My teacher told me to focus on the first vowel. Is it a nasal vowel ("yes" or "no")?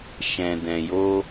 yes